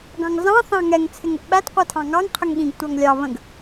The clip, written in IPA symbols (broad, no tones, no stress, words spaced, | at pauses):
ɡɑ̃ŋzɑ̃ θɑ̃ŋɛŋ t͡sʰɪŋəʔɓæt qʷɜtʰɑ̃ŋɑŋ qʰəŋɠĩɡ tʷɑŋlʲɑ βə̃ɡ